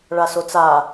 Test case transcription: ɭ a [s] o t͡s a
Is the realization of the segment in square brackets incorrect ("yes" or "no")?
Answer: no